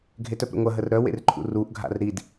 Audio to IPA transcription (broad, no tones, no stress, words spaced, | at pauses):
ɡʱetœpɾə̰ŋʷɐ ɦərɾœwḛrǃʰṵ ruʔɡʱa̰r ɾid